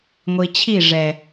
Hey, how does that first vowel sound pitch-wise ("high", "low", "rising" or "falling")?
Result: low